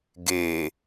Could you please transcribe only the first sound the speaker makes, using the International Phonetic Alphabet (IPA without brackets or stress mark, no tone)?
ɡ